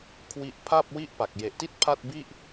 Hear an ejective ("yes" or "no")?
no